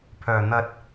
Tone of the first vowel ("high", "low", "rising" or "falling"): low